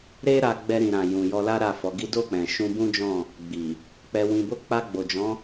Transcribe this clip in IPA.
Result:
ɾ e˦ ɾ a˧ ɡ͡b ɛ˧ ɾ ĩ˨ ɾ ã˨ j ũ˨ j ɔ˧ l a˦ ɾ a˦˨ f ɔ˨˦ ɡ i˦ d o˦˨ k͡p ɛ̃˨ ʃ ũ˧ b ũ˦ d͡ʒ ɔ̃˦˨ | ɡ͡b i˨ | k͡p ɛ˧ w ĩ˧ b o˦ k͡p a˧ ɡ͡b o˨ d͡ʒ ɔ̃˨˦

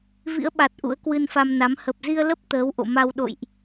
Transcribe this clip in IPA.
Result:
v ḭ˧˥ ə̯ ɓ a˨˩ t̚ ʔ ṵ˧˥ ə̯ k w ɨ˧ n f a˧ m n a˨˦ m h ə˨˩ p̚ z i˧ ə̯ l ə˦˥ p̚ t̪ əː˨˦ w ʔ o̰˧˨ m a˧ w ɗ o̰˧˨ j ʔ

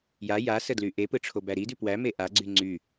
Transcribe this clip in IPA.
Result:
j a j a s ə d l y ʔ e p ɯ ʈ͡ʂʰ o b æ ɾ i d ʉ p w æ m e ʔ a ɡ͡ǀ y ŋ͡ǀ y

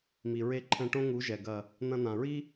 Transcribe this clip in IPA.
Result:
m i˨ ɹ e˧ ǃʰ ɛ̃˧ ʈ õ˦ ŋ u˨˦ ʒ ɛ˨ ɡ ɐ˨ | n̪ ɐ̃˧ n̪ ã˨ ɹ i˦

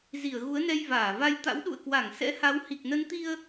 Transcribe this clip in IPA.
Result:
z i˧˩ ə̯ ɣ u˨˦ ə̯ n ɛ˧ j v aː˧˩ v a˧ j t̪ a̰˧˥ w ɗ ṵ˧˨ ə̯ k w a˧˩ ŋ s ɛ̰˧˥ h a˨˦ w h i˨˩ k̚ n ə˨˦ n t̪ i˧ ə̯

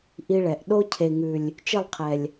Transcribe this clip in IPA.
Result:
ʔ i˧ ɭ ɛ˨ ʔ ɗ o˦ cʰ e˨ ŋ ʉ˨ lʲ | t͡ʃ ɪ˦˨ lˠ qʰ ɛ˨ lʲ

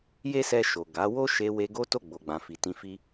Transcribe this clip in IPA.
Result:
j e˦ s ɛ˧ ʃ o˨ ɡ a˨˦ w o˦ ʃ e˧ w e˧ ɡ o˦ t o˦˨ ɡ͡b o˨ ɡ͡b ã˨ f i˨ t ĩ˧ f i˦

